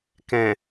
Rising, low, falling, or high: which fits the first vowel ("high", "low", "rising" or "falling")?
low